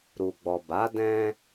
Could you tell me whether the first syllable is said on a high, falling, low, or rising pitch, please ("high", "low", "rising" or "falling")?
low